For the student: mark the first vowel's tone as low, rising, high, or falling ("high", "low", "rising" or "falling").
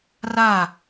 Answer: falling